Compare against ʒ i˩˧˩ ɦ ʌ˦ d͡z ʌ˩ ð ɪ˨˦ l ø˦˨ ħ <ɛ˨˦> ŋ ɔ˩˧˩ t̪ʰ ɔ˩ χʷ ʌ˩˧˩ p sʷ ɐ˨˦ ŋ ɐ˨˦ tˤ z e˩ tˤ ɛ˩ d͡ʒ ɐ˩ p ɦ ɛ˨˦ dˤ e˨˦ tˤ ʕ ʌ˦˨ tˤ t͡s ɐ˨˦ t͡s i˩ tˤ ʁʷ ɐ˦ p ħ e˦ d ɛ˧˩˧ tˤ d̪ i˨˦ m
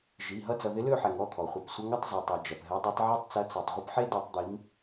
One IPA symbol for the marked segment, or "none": ɛ˩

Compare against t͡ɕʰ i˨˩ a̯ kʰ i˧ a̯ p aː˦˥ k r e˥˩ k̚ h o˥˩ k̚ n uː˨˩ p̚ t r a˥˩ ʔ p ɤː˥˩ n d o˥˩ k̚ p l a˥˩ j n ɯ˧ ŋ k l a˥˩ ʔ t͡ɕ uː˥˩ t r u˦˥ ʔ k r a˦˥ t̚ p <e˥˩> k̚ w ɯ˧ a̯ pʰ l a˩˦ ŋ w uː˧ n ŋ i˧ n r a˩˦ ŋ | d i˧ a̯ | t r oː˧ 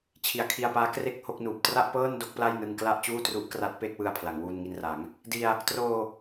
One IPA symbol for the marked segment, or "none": e˥˩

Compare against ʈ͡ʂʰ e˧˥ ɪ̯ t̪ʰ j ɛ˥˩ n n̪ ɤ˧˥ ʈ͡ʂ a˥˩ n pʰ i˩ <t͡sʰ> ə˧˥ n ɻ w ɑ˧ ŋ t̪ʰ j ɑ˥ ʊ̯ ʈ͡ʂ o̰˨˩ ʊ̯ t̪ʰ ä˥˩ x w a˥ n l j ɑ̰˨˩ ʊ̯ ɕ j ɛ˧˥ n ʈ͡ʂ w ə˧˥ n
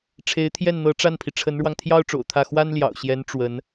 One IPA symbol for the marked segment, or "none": ʈ͡ʂʰ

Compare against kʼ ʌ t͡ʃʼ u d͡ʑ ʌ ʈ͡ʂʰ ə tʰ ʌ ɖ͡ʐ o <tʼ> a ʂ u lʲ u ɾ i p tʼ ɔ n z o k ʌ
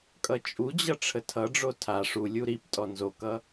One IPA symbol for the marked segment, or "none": tʰ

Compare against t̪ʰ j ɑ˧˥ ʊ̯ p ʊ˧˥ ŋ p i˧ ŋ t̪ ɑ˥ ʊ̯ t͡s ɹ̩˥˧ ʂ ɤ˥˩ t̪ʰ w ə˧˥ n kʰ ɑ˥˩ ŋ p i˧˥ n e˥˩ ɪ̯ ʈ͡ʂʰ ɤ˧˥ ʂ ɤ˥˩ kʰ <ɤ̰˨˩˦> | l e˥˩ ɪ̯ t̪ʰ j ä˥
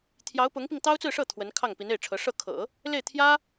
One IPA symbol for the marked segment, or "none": ɤ̰˨˩˦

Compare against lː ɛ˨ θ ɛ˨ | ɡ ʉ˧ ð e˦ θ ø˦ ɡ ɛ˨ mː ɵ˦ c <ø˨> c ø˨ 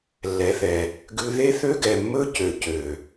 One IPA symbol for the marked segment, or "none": ø˨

